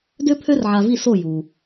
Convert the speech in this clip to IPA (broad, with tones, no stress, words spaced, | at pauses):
dø˥pʰø˥rʕa˧vi˥˩ so˥˩ju˩